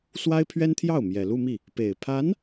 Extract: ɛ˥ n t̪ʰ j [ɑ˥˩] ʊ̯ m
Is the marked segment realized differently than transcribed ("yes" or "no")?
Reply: no